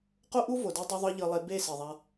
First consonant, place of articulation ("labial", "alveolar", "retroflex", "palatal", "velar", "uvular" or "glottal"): uvular